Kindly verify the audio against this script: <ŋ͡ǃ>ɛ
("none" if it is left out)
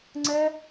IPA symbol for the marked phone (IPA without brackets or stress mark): ŋ͡ǀ